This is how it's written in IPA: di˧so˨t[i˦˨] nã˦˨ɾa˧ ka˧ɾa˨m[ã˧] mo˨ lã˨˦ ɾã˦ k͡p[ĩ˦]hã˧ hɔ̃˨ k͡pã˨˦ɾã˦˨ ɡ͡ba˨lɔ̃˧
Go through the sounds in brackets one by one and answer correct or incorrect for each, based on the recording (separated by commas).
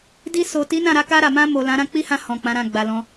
incorrect, correct, incorrect